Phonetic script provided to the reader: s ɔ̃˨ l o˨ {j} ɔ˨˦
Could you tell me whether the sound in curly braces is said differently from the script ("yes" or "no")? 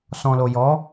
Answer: no